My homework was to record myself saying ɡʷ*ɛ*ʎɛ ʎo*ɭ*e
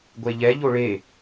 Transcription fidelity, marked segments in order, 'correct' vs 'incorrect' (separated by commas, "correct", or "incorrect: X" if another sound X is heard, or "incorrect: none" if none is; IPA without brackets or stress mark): incorrect: e, correct